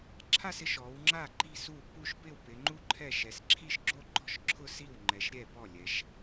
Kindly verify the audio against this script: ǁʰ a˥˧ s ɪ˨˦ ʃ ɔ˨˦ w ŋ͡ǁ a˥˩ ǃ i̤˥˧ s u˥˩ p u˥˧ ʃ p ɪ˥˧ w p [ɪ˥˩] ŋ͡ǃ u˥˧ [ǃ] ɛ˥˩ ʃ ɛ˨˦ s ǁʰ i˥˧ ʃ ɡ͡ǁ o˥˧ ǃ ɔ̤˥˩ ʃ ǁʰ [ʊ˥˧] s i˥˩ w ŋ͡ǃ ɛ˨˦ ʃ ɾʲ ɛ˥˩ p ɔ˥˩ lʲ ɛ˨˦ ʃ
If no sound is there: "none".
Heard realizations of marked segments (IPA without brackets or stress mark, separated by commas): ɪ˨˦, ǃʰ, ʊ˥˧